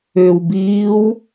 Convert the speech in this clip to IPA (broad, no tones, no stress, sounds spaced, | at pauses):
ʏ w b iː w